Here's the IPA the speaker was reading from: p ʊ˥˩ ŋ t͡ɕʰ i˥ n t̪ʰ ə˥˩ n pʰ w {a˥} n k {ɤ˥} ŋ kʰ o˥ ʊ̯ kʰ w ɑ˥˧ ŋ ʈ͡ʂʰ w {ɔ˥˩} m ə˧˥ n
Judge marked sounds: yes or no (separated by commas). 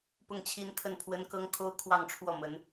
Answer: no, yes, yes